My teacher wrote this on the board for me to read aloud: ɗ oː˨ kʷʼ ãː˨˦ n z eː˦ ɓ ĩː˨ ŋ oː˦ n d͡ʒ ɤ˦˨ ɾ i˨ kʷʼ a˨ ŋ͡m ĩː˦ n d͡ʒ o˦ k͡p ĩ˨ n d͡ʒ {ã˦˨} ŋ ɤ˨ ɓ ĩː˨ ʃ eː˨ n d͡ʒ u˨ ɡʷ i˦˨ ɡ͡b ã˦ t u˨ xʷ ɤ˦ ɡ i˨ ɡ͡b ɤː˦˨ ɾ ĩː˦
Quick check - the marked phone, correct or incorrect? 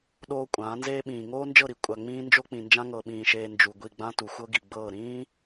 incorrect